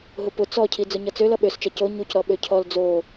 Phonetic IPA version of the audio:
ɦʊpʊ t͡sɔcʰi d͡zʊɲʌt͡sølʌ ɓøst͡ʃɐ co ɲuc ɾɔɓøcʰɔl d͡zo

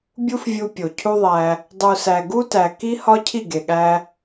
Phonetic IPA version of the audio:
bʲu˦fvʲu˧pʲo˨ cʰu˦ðˤæ˧ | dˤu˨sæ˨ ɡu˦tæ˨ki˦ hɒ˦cʰi˦˨ɡe˨ ɠæ˧

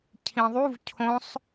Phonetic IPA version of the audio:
cʰĩðˤuv cʰõsˤ

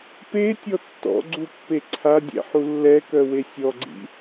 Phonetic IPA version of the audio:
pe tʲɔtːɔ̰ɡ͡ǀu pːeǀʰadʲɛ̰ ħulːɛkœ wesʲɔɡ͡ǀḭ

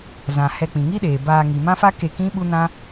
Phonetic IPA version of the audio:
zã˨ hɛ˧k͡pĩ˨ŋi˦ɗeː˨ baː˧ŋi˨mã˦fa˦ ke˧kĩ˦ ɓu˦nã˦

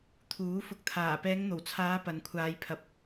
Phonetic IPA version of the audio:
t̪ʰuː˨˥fʊ˧k̚ t̪ʰaː˨˩pɛː˨˧ŋn̪o˨˩wt͡sʰaː˨˧ pɐ˨nkʷʰaː˨˧jpʰɐ˨˥p̚

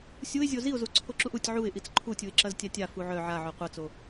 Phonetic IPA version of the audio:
sʲuɪ̯zʲo ziʊ̯zu ǀʰoǁuʔutʲ ʕuɪ̯ ʔit͡sǃʰutʲuɪ̯ǁɐz tʲatʲa fuʕœ ʕaʕœ qʷɐt͡so

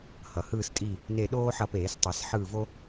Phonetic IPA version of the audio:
hʌ˩hɯː˦˨s tʼi˦˨ | ne˦˨ɗoː˥ħʌ˦˨peː˧˩˧s tˤɛ˧˩˧sħɯː˦˨vo˥

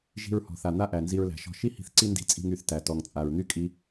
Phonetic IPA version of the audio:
ʒi̤˧ɹhɔ̤˩ θa˩n̪a˥ ʔæ˩nzi˧ɹlæ̤˩ʃɔ̤˧ ʃi˥hi̤˧θ ǀi˥ndi̤˧t͡sʼi̤˧ŋ y˩θtæ˩ tɔ˩ŋt͡sʼa˩ɹn̪y˥kʼi˧

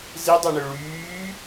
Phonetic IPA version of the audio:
zidˤɛɳø ɭyː

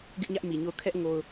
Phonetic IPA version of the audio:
ɡɪ˦ʔɲä˦ʔ mi˨ɲo˦˨ʊ̯ kʰɛ˦ʔ ŋo˦ʊ̯

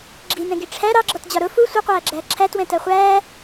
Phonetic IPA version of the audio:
ɡ͡ǁinɛ̃ɡi ʈ͡ʂʰæ ɾɑɡ͡ǁɔtd͡ʑɒ ɾʊ fu sʷʌqʷæːɡ͡ǁæː ǁʰætwɛ̃tɜ χʷæː

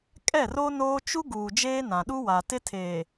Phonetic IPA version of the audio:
kʼɛ˦˨ro˦ noː˦ t͡ʃu˦ɡuː˨ d͡ʒeː˦nã˨ɗu˦ wa˨tɪ˦ tʰeː˨

